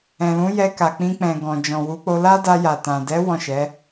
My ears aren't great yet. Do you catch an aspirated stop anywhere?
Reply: no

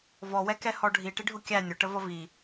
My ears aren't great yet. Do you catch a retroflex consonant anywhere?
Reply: yes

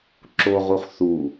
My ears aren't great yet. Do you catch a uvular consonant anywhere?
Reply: yes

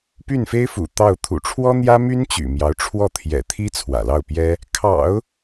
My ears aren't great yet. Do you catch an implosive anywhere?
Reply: no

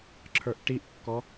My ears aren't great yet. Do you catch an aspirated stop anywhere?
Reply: yes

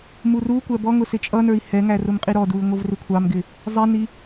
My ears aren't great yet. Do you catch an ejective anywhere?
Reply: yes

